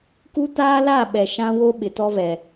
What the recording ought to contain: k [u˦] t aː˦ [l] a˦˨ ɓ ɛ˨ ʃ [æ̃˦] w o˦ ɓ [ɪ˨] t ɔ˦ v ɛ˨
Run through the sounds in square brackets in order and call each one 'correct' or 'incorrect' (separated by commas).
correct, correct, incorrect, correct